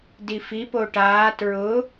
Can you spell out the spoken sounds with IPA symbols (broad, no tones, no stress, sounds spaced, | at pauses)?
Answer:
d i f i p o ʈ aː t ɹ ʊ